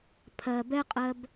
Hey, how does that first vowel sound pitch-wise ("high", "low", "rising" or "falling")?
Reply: low